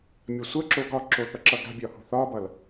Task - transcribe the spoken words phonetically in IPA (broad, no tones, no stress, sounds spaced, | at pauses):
mʲ ɒ sʷ ɜ ǁ o ɡ ɒ ǁ o θ ʌ ǁ ʌ ɡ a̤ bʲ ɒ h o̤ θ ɒ b ʌ l